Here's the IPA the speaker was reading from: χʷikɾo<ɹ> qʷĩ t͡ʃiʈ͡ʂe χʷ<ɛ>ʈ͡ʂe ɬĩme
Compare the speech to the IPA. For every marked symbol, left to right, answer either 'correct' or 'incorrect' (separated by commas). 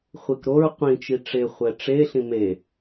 correct, correct